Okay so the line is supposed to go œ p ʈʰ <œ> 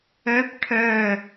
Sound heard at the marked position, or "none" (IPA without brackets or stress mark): œ